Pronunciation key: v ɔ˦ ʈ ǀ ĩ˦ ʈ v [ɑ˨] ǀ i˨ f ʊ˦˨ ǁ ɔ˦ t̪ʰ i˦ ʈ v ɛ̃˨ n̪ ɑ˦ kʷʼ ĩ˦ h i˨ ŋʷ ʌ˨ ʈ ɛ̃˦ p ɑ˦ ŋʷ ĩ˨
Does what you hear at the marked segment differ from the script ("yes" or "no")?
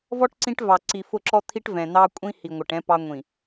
no